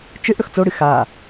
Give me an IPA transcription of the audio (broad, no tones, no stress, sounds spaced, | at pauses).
t͡ʃ ɨ ʔ ɽ ɵ x t͡s o ɽ ɨ x a